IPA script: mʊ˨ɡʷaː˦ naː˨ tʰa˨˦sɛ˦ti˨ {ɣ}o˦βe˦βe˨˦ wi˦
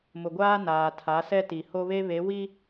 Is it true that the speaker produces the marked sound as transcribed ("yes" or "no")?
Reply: no